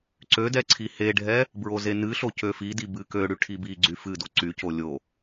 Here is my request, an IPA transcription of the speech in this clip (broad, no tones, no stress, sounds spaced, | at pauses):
ǀ ø d ɛ ǀʰ i h e ɖʱ ɛ | b ɹ o z e n ɨ ɬ o c ø f i d i b ɨ k ø ɽ y ʈʰ i b i ɡ͡ǀ y f ɨ d o ǀ y c o lʲ o